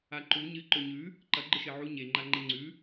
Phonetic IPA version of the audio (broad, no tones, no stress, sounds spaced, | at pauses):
a ǃ u ɲ ɨ ǃ ɵ ɲ ʉ | ǃ ɐ ɡ͡ǃ ɨ ʃ e ʕ u ɲ e ŋ͡ǃ a ŋ͡ǃ e ŋ͡ǀ ʉ